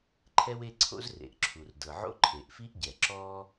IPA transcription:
ǃʰ ɛ˥ w e˥ ǀʰ o̰˥ z r ḛ˩ ʔ ǁʰ u˩ r d ɤ˩ ʕ o̰˥ ǃʰ e˩ ʔ f i˥ ʔ ɟ ɛ˩ ǁ ɔː˥

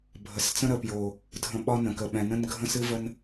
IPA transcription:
bʱ ə˨ s t͡s ə̃˦ ɾ ə˨ p j o˨ | dʱ ə̃˨ ɓ ɒ˦ n ə̃˨ k ə˨ ɓ ɛ̃˨ n ə̃˦ n ɡʱ ə̃˦ s ɨ˦ v ə˦ n

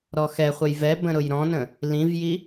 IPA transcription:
ɾ ɔ x ɛ χʷ ə j v ɛ b ə̃ ɾ ʊ j ɾ ɔ̃ n ə̃ | l ĩ v j i

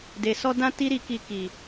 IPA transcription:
d e˨ s ɔ˧ d ã˧ t i˦ ɾ i˧ k i˧ k i˨

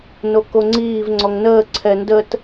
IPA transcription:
n o k o ŋ͡ǀ iː v ŋ͡ǀ ɔ ŋ n əː ǀʰ ɛ n d ə t

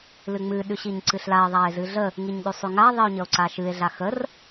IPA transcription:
l ɨ ŋ͡m ɨ ɗ ʉ ɕ i ɲ ǀ ɨ ɬ l a e̯ ðˤ a e̯ z ɨ ɮ ə | ŋ i ɲ ɗ ʉ sˤ ʉ ŋ a ðˤ i o̯ ɲ ə o̯ ǀ a ʃ ɨ e̯ ɮ a x ə r

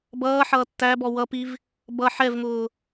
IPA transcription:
b ʌː ħ ʌː tː æ b ɔ w ʌ p i v | b ʌ ħ ɛ v ŋ ʊː

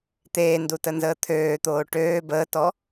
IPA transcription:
t̪ eː n d u t ə n z əː t̪ʰ øː t̪ oː ʈ øː b əː t ɔ

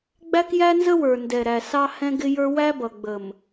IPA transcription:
ɡ͡b æ˦ k j æ˦ n z ə˦ w ə˞˨ n d ɛ˨ ɾ æ˨ s ɑ˦ h ɛ̃˦ ɡ ɪ˦ j ə˞˦ w æ˦ b ʌ˨ ɡ͡b ə˨ m

